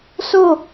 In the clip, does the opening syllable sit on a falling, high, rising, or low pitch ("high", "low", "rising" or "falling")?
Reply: falling